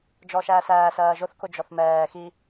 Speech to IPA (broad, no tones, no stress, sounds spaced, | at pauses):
d͡ʒ ɔ ʃ æː s æː s ɜː ʒ ʊ θ k ʊ d͡ʒ ɔ θ m ɛː x i